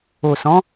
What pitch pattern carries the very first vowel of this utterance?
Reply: low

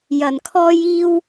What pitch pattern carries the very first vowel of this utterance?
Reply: low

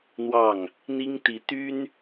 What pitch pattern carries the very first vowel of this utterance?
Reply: falling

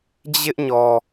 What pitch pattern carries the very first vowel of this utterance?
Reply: high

